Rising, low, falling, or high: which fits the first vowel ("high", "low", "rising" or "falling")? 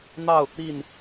falling